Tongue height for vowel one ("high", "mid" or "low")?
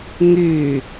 high